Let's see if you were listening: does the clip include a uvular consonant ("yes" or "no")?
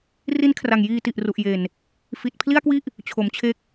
no